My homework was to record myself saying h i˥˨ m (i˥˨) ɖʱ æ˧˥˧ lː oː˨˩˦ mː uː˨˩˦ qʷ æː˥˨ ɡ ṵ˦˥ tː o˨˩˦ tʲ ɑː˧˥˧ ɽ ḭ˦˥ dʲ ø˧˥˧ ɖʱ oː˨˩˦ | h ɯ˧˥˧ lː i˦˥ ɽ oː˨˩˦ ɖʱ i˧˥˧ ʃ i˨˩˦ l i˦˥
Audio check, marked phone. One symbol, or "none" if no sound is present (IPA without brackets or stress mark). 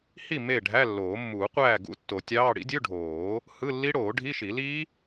e˥˨